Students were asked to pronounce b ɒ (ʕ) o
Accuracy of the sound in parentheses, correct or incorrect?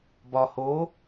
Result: incorrect